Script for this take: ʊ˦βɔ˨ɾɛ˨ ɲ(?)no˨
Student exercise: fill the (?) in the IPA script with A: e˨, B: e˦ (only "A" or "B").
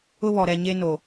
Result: B